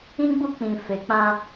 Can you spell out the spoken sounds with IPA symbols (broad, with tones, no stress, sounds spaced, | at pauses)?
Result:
ĩ˦ ɡ͡b u˦ k͡p ĩ˨ f e˨ k͡p ã˦